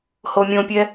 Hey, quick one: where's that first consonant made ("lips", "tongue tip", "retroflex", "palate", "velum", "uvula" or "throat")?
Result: throat